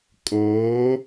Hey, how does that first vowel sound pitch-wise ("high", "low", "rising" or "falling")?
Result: rising